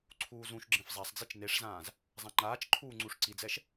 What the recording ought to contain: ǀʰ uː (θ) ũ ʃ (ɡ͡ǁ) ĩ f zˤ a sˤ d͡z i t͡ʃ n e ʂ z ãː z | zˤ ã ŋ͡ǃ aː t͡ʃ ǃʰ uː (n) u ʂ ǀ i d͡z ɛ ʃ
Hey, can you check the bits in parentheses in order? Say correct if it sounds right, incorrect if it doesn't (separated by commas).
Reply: incorrect, correct, incorrect